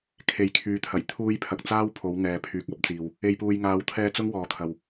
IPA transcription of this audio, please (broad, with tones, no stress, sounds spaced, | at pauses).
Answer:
kʰ e˨˥ j kʰ yː˨˧ t̪ʰ ɐ˨˩ j t̪ʰ uː˧ j pʰ ɐ˨ k̚ t͡s aː˥ w pʰ o˨˧ w ŋ ɛː˨ pʰ yː˨ k̚ ɐ˨˥ p̚ t͡s iː˨ w | e˨ j p uː˨ j ŋ aː˨˧ w t̪ʰ ɛː˧ t͡s ʊ˥ ŋ w ɔː˨ t̪ʰ ɐ˨ w